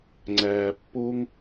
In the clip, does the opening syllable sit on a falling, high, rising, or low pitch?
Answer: low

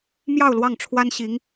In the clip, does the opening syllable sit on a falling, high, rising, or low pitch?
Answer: falling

